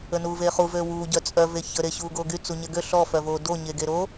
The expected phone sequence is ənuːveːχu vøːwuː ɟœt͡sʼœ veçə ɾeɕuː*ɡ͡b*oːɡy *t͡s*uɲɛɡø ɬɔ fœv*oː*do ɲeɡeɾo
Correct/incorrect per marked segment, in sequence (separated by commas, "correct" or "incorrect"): incorrect, correct, correct